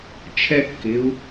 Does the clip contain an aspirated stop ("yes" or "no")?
yes